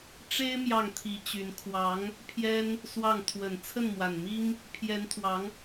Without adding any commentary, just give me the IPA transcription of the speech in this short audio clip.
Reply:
ʈ͡ʂ e˥ ɪ̯ m j ɑ˥˩ ŋ t̪ʰ i˧˥ t͡ɕ y˧˥ n kʰ w ɑ˧˥ ŋ | pʰ j ɛ˥ n | s w ɑ˥˩ ŋ t̪ʰ w ə˨˩ n t͡sʰ ə˥˩ n m w a˨˩ n m i˥ ŋ | pʰ j ɛ˧˥ n t̪ʰ w ɑ˧˥ ŋ

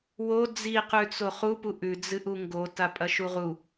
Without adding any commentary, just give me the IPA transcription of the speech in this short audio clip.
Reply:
w o d͡z i q ʉ t͡s o χ u p u ʔ ʉ d͡z ɨ ʔ u ŋ ɡ o t a pʼ ɐ ʃ u ʁ u

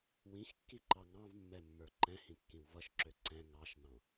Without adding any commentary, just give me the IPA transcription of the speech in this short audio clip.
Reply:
w ĩ x kː i ǃ ɑ ŋ ɑ̃ v mː ɛ mː ə˞ ǃ ɛ̃ h ĩ kː ĩ w v ʌ ʃ ǁ ø ǀ ɛ̃ ŋ ɑ ʃ n̪ ɑ̃

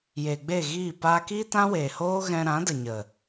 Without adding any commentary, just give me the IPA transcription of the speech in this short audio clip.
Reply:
j eː˨ ɡ͡b e˦˨ ɣ iː˦˨ p aː˧ k iː˦ t ã˦ w eː˨ h oː˦ ɣ ɛ̃˧ ɾ ã˨˦ d ə˨ ɲ ə˨

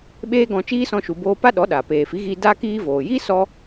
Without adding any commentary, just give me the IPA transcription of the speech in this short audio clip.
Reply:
ɓ eː˦ ɡ ɔ̃˧ t͡ʃ iː˦ s ɔ̃˧ ʃ u˨ b oː˧ p a˦ ɗ ɔ˨˦ ɗ a˨ p eː˨ f i˨˦ ɣ iː˧ d aː˦ k iː˦ v oː˨ j iː˦ s ɔ˧

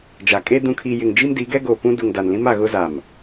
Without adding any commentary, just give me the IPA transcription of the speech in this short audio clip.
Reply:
d͡ʒ a˨ kʼ e˦ d ũ˨ kʰ i˨ j ɪ˨ ŋ d͡ʒ i˦ m d i˨˦ ɡ ɛ˦ ɡ o˨ p ũ˦ d u˨ ŋ d a˨ n l ĩ˦ m a˨ ɣ ʊ˦ z a˨ m

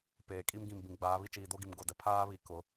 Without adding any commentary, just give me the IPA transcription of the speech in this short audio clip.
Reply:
p eː˨ kʼ i˦ m ɡ ĩ˨ m b ĩ˨ ɡ͡b aː˨˦ β i˦ t͡ʃ iː˨ d o˦ ɡ i˨ m ɡ o˨ d ɛ˨ pʰ aː˦ β i˨ k ʊ˨˦

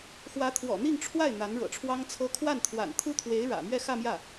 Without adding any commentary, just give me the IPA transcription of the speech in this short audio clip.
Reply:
x w ä˧˥ t̪ʰ w ɔ̰˨˩ n̪ i˥˧ ŋ ʈ͡ʂʰ w a˥˩ ɪ̯ n̪ a˧˥ n ɻ ɤ̰˨˩ ʈ͡ʂʰ w ɑ˥ ŋ t͡sʰ ɤ˥ kʰ w a˥˩ n t̪ʰ w a̰˨˩ n t̪ʰ u˥ t̪ʰ w e˧˥ ɪ̯ ɻ ä̰˨˩ m ɥ ɛ˥˧ x ä˥˧ m j ä˥˩

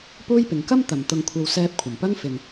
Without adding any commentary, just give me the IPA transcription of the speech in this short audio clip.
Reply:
p uː˥ j p ɪ˨˧ ŋ k ɐ˥ m t̪ ɐ˨ m t̪ ʊ˧ ŋ kʷʰ ɐ˧ w s ɛː˧ p̚ kʷʰ ɐ˨˩ m p ɐ˥ ŋ f ɪ˨ ŋ

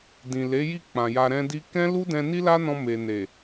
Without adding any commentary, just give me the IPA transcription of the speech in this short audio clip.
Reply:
d ĩ˨ l e˨˦ j i˦˨ k͡p ã˨ j a˧ ɾ ɛ̃˦ d i˦ k ɛ̃˦ l u˦ d ɛ̃˧ n i˦ l a˦ n ɔ̃˧ m e˨ n e˨

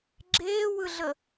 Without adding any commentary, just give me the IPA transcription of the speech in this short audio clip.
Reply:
ɡ͡ǁ eː w ɯ ɮ ə

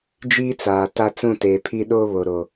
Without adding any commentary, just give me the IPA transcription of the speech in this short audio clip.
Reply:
d͡ʒ iː˦ t͡s aː˨ t a˦ t͡s ũ˦˨ t eː˨ pʰ i˦ ɗ oː˦ β o˨ ɾ o˨

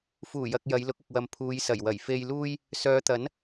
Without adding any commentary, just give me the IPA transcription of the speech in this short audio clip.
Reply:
f uː˨˩ j ɐ˨ k̚ j ɐ˨˧ j l ʊ˨˥ k̚ ʊ˨ k̚ w ɐ˨ m pʰ uː˨˧ j s ɐ˨˩ j w ɐ˨˩ j f e˧ j l uː˥ j | s œː˨˧ t̪ ɐ˨˥ n

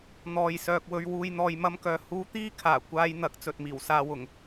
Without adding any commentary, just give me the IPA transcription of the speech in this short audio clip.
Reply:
n̪ ɔː˨ j s œː˨ k̚ w ɵ˨ ɥ w uː˨ j n̪ ɔː˨ j m ɐ˧ m k œː˨ h uː˧ t̪ iː˥ kʰ aː˨˩ kʷ aː˧ j n̪ ɐ˨˥ k̚ t͡s ɵ˨ t̚ m iː˨˩ w s aː˨ w ʊ˨˩ ŋ

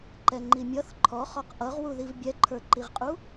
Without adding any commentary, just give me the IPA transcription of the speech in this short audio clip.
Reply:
ǃ ɛ ŋ͡ǃ i mʲ ʌ θ ǃʰ ɔ χ ɔ q ʔ ʌ ʁ w u ð i v bʲ ɛ ǃʰ ə˞ ǃ i ʁ qʼ u

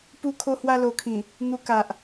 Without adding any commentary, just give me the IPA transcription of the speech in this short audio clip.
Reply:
p u˧ kʰ o˧ h w a˧ l o˨˩ kʰ ĩ˨˩ | n̪ u˧ k a˨ ʔ

